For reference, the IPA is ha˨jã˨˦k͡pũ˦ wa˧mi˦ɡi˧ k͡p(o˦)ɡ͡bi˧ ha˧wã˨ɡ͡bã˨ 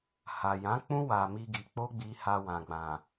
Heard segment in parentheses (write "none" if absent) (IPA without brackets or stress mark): o˦